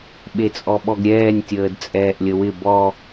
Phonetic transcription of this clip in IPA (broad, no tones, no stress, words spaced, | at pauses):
ɓet͡sʼɔɓɔɡɾʲɛːnʲ tʲəːdt͡sʼɛːʔlʲəwɪ bɔ